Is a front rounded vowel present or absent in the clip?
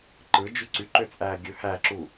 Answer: present